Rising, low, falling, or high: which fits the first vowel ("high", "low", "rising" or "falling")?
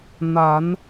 rising